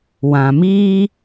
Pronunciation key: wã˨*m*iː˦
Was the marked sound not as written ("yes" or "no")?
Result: no